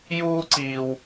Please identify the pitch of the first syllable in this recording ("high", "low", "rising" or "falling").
high